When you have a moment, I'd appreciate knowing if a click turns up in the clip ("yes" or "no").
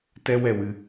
no